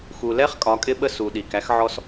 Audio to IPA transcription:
x u˨ l ɛ˦ χ kʼ ɒ˨˦ kʼ ɪ˦ ɓ ə˦ s u˨ ɗ i˨ k æ˦ x ʕ ɔ˦ s

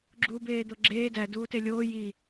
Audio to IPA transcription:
ɡ͡ǁ uː b eː d̪ o ɡ͡ǁ eː d æ d uː t e lʲ oː j i

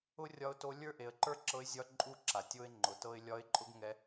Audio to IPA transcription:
ʊ˥ rʲ ɒ˧˥ ʊ̯ t o˧˥ lʲ ə˞˥ ʔ e˩˧ ə̯ ǃ ə˞˥ ǁ ɤ˧˥ ɪ̯ zʲ ɒ˧˥ ǃʼ u˥ ǁ a˩ tʲ o˥ ɪ̯ ŋ͡ǃ ʊ˩˧ t ɤ˧ ɪ̯ lʲ ɒ˧˥ ɪ̯ ǃʼ ʊ˥ ɡ ŋ ɛ˧˥

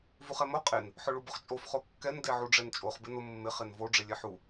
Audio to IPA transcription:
v u χ ɛ m o qʼ e n | ħ ʊ ɭ u b ʊ χ t͡ʃʼ o f χ o kː ɛ n d e ʕ u ɖ͡ʐ ɛ n t͡ʃʼ o χ b ɪ n ʊ mː ɪ χ e n v o ɖ͡ʐ e lʲ e ħ u

